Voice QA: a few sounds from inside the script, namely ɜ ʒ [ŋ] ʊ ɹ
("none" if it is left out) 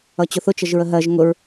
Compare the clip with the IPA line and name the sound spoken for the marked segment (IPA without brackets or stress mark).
ŋ